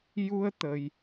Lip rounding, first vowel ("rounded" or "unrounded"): rounded